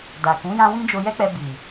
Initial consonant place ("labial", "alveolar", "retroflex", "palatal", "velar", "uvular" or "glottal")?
alveolar